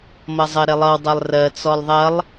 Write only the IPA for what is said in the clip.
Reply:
mʌzˤɜɾelˠʌw dˤɜlˠrɜ t͡sɔlˠðˤɐlˠ

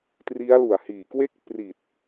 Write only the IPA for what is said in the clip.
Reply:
tri˦˥a̯lu˨˩a̯hiː˨˩kwe˥˩k̚ pri˨˩t̚

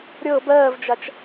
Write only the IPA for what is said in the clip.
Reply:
ɾʲɤ bɜːvd͡ʒat͡ʃ

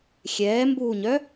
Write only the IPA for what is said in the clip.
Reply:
xʲɛːmbuːɲœ

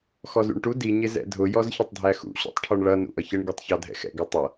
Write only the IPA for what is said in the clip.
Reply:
xɔzṵɳʈu di ɲɪzɛ̰dʱʊ jɔzçətˤdʱæxṵ ɕɔ̰tˤʈʰɔɳɭʌ nṵʔʌçəɳ ɡitˤçɑdʱɛ̰xɛ̰ ɡʌtˤʌ

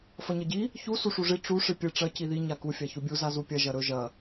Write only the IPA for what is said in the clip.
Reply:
fɐɲɐɟi | çu suʂuʐi ʈ͡ʂu ʂɨpʲɨ ʈ͡ʂɐ ciði ɲaku fʲaçubʲu zazupʲɐ ʒɐɾɵ ʒɐ

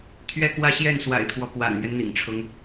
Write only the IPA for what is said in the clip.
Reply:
t̪ʰɥɛ˥˧kwä˥˧ɕjɛ˥˩n swa̰˨˩ɪ̯t̪ʰwɔ˦ pwa̰˨˩nmɥɛ˦n n̪ḭ˨˩ŋʈ͡ʂʰʊ˦ŋ

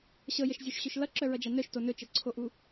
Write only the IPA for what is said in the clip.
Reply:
ɕɤjəʃzʲoʃɕɵʃ lʌǁœɹʌd͡ʒa nœʃto nɵt͡ʃɤǀʰoʔu

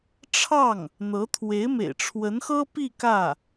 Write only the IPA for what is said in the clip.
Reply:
ʈ͡ʂʰɑ˥˩ŋ | n̪ɤ˧˥t̪ʰwe˧˥ɪ̯mḛ˨˩ɪ̯ ʈ͡ʂʰwə˧˥nxɤ˥pi˥˧ kä˥˩

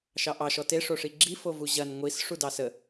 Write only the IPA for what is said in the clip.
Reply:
ʃɑʔɑ ʃɔte ʂoʂiɡ͡ǁi fovuʑɐn ŋʷis ʂudɑsə

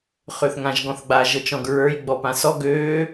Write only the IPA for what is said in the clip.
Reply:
χøθŋãʒɡɔ̃θɡ͡ba ʒɤt͡ʃɔ̃ɡɹə˞j ɡ͡bɔpãsɔ ɡøː

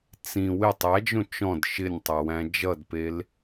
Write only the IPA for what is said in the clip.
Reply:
t͡sĩ wɪ tˤæd͡ʒõ t͡ʃɔ̃d ʃɪnʲtˤawæ̃ d͡ʒʌdpel

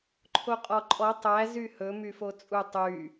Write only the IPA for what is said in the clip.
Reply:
ǃʰoqʼɔǃʼɔ tˤæ zyhɵ myfot͡sʼu tˤy

